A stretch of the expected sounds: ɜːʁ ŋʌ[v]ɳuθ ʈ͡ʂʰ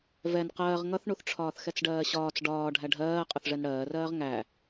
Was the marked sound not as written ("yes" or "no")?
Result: yes